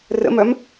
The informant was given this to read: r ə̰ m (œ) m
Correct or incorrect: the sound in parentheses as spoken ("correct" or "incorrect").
correct